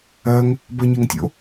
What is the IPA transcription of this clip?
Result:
ɜŋ | bɜɲeŋtʲo̰

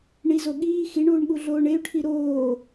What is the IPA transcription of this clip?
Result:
ɳizo ɠiː xiɳuːɳɠu ɮoːɳey̯ʈʰi ɾoː

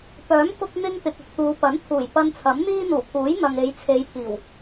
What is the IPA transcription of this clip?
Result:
pœː˨˥mkʊ˧k̚n̪ɪ˧ŋ t̪ɪ˨k̚ʊ˨k̚t̪uː˨˧ pɐ˨˥nt̪ʰuː˨˩j pɐ˧nt͡sʰɐ˨˥mn̪iː˥ n̪uː˨˩pʰuː˨˥j n̪ɐ˨ŋe˨˧jt͡sʰe˨˧jpʰiː˨˩w

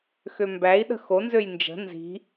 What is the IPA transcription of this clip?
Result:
xømbæi̯ɗə̤ xonzøj nd͡ʒə̤ nzi̤

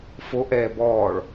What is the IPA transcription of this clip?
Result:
foʔɛː bɔːɭ

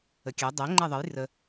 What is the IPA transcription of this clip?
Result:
əkʲɛ dˤɛ ŋ͡ǃɛðˤəj rə

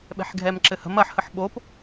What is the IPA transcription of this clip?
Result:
ɓɛ̤ħɡʱɛmǁɘhə̤m ɐħhəħ ɓop

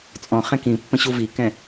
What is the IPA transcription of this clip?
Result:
t͡sʼɔ̃ χɛ̃kĩpːə̃ ɕuvikɛ̃

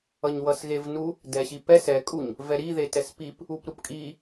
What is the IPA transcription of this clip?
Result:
ʌɲwʌsɣevnu | dɛɕipɛs ɛkʼuɲ | vɛɾi ðetɛspip | upɾupkʼi

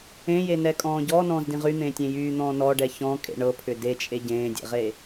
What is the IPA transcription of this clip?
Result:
ẽjenɛkʼɔ̃ː ɟɔːnɔ̃ːzdĩ ʁyn̪ẽːtʲẽ jyːn̪ɔ̃ː nɔɖɛ çɔ̃kʼḛ ɳɤpʰʏ det͡ʃʼe ɟẽːdʲḛʁe

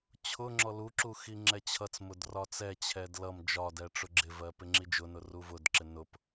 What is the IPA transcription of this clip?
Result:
t͡ɕʰʊ ŋ͡ǁɔluǁu xiŋ͡ǁɛt͡ɕʰʌt͡smʊd rɒt͡sɛt͡ɕʰɛd lʌm d͡ʒɒdɛ ʈ͡ʂʊɡ͡ǁɪvɜ pɪŋ͡ǁid͡ʒʊnʊ ruvʊdǁɪ nʊp

